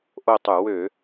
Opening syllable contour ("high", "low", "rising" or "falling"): falling